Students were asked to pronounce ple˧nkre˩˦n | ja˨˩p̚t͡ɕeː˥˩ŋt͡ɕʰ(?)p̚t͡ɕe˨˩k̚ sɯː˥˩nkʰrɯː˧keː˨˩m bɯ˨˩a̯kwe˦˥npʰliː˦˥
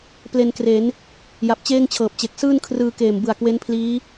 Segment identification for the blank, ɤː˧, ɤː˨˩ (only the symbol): ɤː˨˩